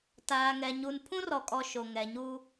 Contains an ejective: yes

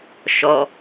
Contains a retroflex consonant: no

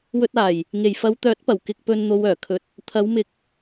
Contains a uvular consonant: no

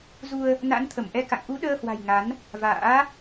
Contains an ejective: no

